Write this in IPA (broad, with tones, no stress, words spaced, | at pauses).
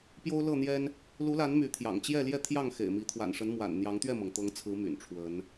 pjo˦ʊ̯lɤ˥˨n̪jɛ˦n | lu˨˦la˨˦n my˨˦t̪ʰjɑ̰˨˩ŋ t͡ɕjɛ˥˨ljɛ˥˨t̪ʰjɑ˥˨ŋ xḛ˨˩ɪ̯mi˨˦ t̪ʰwa̰˨˩nʂə˨˦nmwa̰˨˩n n̪jɑ˨˦ŋt̪ɥɛ˥˨mɤ˩ŋ t̪ɤ˨˦ŋt͡sʰɹ̩˨˦ my̰˨˩nʈ͡ʂʰwə˨˦n